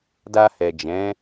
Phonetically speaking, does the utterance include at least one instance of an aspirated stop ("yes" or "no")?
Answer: no